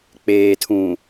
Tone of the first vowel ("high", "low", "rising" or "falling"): low